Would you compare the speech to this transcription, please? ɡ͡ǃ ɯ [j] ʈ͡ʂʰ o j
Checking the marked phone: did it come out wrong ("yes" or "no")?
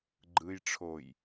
no